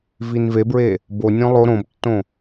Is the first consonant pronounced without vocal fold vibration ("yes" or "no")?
no